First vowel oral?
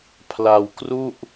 yes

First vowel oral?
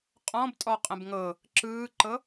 no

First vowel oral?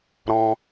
no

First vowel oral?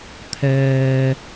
yes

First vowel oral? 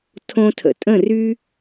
no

